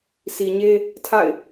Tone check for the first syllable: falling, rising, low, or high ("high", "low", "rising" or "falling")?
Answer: low